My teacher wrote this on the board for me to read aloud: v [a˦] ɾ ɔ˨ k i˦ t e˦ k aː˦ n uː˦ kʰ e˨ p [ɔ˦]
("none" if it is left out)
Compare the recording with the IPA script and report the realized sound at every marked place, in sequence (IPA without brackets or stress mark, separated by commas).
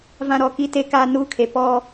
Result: ã˦, ɔ˦